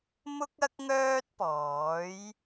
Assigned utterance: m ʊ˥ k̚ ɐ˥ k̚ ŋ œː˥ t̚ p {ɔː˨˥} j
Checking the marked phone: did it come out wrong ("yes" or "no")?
no